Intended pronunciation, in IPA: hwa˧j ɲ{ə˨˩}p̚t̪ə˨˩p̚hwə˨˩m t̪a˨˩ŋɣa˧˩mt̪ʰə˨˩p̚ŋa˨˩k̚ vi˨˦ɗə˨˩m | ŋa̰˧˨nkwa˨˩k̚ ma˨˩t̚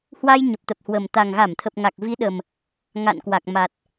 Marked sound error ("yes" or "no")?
no